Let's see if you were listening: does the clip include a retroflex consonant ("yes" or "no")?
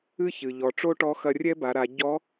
yes